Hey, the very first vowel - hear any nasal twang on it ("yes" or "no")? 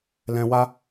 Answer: yes